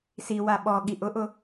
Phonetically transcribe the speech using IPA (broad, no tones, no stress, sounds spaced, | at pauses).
s i w a ɓ ɔ ɠ i ʔ ʊ ʔ ʊ